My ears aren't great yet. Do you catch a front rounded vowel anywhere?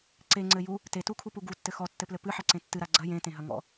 no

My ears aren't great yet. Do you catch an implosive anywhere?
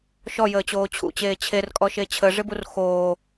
no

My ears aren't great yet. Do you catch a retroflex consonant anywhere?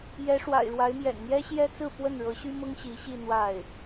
yes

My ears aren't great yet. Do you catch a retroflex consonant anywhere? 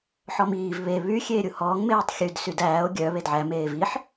no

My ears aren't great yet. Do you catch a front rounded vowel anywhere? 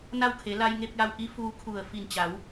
no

